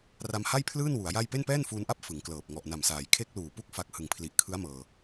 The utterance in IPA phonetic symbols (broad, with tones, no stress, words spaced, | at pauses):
ra˧mha˥˩jpʰlɯː˥˩n wu˩˦a̯ja˥˩j pe˥˩npɛː˥˩nfuː˧nʔa˥˩p̚ fɯ˩˦ŋklɤː˨˩p̚ ŋɔ˨˩ʔna˨˩msaː˩˦j kʰe˦˥k̚luː˨˩ pu˥˩k̚ fa˦˥k̚ hɯ˨˩ŋpʰli˨˩ʔkʰɯ˦˥a̯mɤː˧